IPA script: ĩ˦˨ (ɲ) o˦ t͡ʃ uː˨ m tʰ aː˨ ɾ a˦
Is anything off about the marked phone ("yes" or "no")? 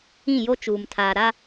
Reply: yes